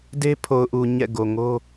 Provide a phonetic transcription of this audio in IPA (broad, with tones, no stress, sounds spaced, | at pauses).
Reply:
d e˦ pʰ o˨ ʊ̯ ʔ u˨ ɲ ɛ̰˦˨ ɡ o˨ ŋ o˦